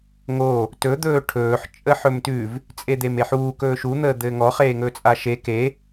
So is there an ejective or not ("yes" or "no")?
yes